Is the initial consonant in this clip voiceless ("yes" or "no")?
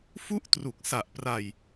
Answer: yes